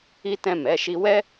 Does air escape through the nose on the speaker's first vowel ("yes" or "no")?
no